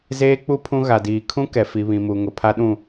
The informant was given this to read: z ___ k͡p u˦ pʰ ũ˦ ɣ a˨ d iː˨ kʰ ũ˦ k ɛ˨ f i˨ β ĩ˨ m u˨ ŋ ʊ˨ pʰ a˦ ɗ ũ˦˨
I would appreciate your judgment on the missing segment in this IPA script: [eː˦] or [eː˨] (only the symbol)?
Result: eː˦